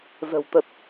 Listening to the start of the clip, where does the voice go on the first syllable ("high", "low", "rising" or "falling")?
low